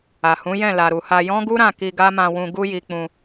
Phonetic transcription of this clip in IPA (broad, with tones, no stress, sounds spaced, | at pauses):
a˨ h ũ˨˦ j ɛ̃˦˨ l a˨ ɾ u˨ h a˧ j ɔ̃˦ ɡ u˦ ɾ ã˦˨ k i˧ ɡ a˦ m ã˧ w ũ˧ ɡ u˦ j i˧ k͡p ũ˧